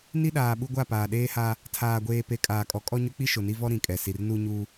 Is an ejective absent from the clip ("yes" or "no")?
no